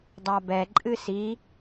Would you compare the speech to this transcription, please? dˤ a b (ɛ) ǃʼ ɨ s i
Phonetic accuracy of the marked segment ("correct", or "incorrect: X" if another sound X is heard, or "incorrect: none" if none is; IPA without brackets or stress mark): correct